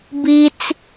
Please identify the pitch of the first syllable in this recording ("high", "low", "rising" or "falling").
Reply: high